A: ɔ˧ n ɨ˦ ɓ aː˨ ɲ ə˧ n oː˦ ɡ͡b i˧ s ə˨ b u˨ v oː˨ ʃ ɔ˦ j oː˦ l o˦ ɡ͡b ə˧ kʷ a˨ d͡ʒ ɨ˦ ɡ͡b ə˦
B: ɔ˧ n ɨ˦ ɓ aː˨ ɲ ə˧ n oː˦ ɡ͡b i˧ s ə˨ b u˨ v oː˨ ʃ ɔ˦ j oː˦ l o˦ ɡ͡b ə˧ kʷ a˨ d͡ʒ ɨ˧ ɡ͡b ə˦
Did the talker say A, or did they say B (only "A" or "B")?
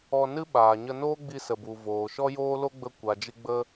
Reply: B